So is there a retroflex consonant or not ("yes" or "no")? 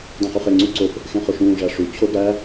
yes